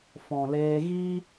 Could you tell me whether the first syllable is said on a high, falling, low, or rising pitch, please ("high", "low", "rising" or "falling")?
low